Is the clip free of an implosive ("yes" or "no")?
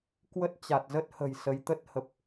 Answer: yes